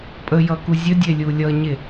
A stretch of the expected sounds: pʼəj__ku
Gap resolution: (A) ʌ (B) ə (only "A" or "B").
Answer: A